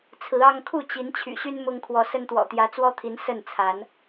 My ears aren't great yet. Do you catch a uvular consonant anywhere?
no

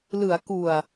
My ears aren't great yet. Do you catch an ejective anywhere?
no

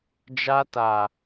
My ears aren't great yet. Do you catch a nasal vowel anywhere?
no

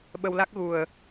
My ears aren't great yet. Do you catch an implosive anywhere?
yes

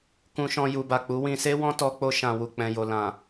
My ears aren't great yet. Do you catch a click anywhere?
no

